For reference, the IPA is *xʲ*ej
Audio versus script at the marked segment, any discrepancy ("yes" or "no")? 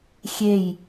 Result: no